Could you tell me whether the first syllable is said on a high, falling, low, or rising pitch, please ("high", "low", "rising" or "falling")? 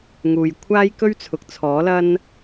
low